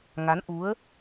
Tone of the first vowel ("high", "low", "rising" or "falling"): rising